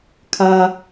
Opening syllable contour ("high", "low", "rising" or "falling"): high